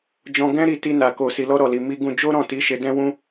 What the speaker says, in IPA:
d͡ʒ ɔ̃˧ ɡ ɛ̃˦ ɾ i˦˨ t i˧ n a˨ k o˨ s i˨ l ɔ˧ ɾ ɔ˨ l i˨ m i˧ ɡ ũ˧ d͡ʒ o˦ ɾ ɔ̃˦˨ t i˨˦ ʃ e˧ d ɛ̃˦ w ũ˦

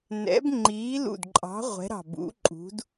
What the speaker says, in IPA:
n ɛ̰˨˥ b ŋ͡ǃ iː˨˥ l ṵ˧˩ d ǃʼ ɑ̤˨˥ ʁʷ ɛ̤˨˥ ɾ ɑ̤˧˩ b ṵ˨˥ ǃʼ ṳ˨˥ d

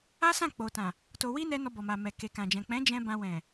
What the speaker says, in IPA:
a˦ s ã˦˨ k͡p o˨ t ã˨ | t o˧ w i˦ n ɛ˦ n ɔ˧ b ɔ˨ m a˨ m ɛ˨ k e˨ k ã˨ d͡ʒ ɛ̃˨ k͡p ɛ̃˨˦ d͡ʒ ɛ̃˧ b ã˧ w ɛ̃˨

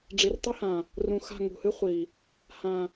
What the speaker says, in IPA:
ɖ͡ʐ i˨ r tˤ ɨ˦ h ã˨ | r ũ˨ x a̤˦˨ ŋ ṳ˨ h ɨ˦ χʷ i˨ | h ã˨

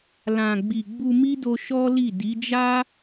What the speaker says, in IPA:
l ã˨ ɡ͡b i˨ ɡ͡b u˧ m i˦ d o˧ ʃ ɔ˦ l i˦˨ d i˨˦ d͡ʒ a˦

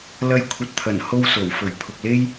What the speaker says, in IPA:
l ɐ˥ j kʷʰ ɐ˧ t̚ t̪ʰ ɐ˨˩ n h o˥ w s o˨˩ w f ɵ˨˩ ɥ pʰ ʊ˨ k̚ l e˥ j

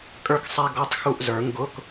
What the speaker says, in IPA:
kʼ ə˞˥ k sˤ ɛ˥ ɡ ɔ˧˥˧ tˤ x u˦˨ ʔ z ə˞˨˩˦ ŋ ɡ ʊ˧˥˧ k

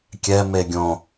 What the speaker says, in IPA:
kʲ ɛ m e ɡʲ õ

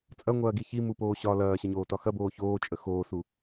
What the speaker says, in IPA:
t͡sʼ ɐ ŋʷ ɐː ɡ i ç i m u p oː ɕ ɒ l ɐː ɕ ɐ ɲ oː t ɒ x ɐ b oː ç oː t͡ʃʼ ə x oː s u

